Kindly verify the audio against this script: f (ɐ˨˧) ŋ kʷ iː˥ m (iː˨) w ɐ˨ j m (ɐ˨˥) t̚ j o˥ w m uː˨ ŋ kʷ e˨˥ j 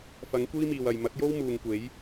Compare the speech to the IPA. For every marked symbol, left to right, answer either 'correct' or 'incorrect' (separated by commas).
incorrect, correct, correct